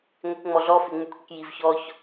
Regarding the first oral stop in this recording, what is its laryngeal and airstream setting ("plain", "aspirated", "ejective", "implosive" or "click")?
plain